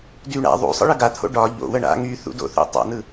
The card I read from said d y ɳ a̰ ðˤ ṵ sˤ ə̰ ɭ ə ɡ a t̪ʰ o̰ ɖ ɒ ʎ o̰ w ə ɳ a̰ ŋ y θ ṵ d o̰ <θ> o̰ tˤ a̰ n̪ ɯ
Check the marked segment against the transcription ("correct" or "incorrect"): correct